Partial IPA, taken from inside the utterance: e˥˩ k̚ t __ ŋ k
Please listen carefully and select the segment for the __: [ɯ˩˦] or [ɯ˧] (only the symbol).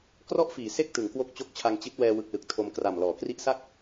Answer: ɯ˩˦